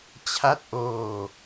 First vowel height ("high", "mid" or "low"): low